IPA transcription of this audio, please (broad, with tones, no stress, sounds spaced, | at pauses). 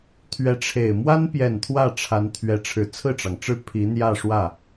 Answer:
t̪ʰ ɥ ɛ˧˥ ʈ͡ʂʰ e˨˩ ɪ̯ m w a˥ n p j ɛ˨˩ n t̪ʰ w ä˥˩ ʈ͡ʂʰ a˧˥ n t̪ʰ ɥ ɛ˧˥ ʈ͡ʂʰ ɻ̩˨˩ t͡sʰ ɹ̩˥˩ ʈ͡ʂ ɑ˩ ŋ ʈ͡ʂ ɻ̩˥˩ pʰ i˧˥ n̪ j ä˥˧ ʂ w ä˥˩